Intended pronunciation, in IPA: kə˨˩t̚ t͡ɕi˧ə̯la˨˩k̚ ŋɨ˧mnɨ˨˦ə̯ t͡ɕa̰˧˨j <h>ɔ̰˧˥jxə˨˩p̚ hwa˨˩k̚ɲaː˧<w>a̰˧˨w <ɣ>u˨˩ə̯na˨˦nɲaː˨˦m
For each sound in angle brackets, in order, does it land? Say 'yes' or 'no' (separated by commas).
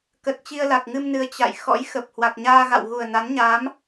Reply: no, no, yes